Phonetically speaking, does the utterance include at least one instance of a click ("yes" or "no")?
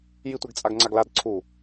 yes